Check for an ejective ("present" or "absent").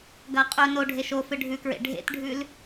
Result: present